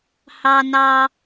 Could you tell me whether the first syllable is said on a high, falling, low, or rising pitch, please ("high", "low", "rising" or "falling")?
high